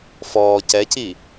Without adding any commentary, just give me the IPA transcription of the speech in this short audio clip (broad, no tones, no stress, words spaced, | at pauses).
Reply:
fɔː cɛci